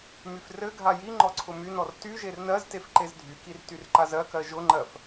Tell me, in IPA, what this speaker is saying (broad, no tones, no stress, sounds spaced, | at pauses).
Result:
m y f r ɘ ɡʱ a j i ŋ͡ǃ ɔ ǀʰ ʊ m y n ɔ r t y ʒ e r n ɜ z t e f ǃ e z dʱ y k i r t y r ǃ a z ɜ k ɜ ʒ ʊ ŋ͡ǃ ɜ f